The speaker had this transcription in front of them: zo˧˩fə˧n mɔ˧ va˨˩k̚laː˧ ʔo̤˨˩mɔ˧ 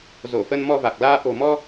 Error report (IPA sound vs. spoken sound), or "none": none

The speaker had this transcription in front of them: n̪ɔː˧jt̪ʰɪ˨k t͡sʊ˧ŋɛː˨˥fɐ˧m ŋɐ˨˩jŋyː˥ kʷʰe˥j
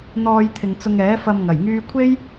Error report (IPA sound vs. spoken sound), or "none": k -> ŋ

